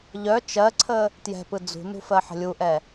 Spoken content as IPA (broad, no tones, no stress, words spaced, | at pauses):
ʎœ t͡ʃɜǀʰə | tjɛ̤pɯ d͡zṳnṳ fɜħə̤lʲuʔɛ